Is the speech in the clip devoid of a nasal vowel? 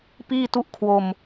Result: yes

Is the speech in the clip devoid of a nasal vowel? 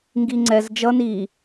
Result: yes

